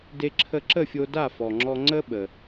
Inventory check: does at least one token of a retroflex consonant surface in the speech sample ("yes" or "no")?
no